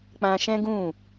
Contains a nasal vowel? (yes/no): yes